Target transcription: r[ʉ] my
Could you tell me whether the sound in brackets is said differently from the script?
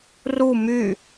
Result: yes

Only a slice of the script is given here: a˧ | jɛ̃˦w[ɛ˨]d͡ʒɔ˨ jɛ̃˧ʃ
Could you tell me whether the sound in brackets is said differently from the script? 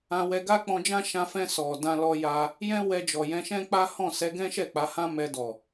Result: yes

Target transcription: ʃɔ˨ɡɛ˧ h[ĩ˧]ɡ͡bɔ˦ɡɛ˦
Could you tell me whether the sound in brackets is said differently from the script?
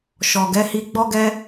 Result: yes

